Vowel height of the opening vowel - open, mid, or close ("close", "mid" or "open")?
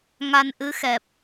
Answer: open